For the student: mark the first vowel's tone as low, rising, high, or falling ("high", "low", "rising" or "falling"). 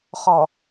low